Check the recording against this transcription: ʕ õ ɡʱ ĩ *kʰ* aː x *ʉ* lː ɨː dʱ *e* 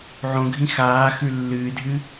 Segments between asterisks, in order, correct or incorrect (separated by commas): incorrect, correct, incorrect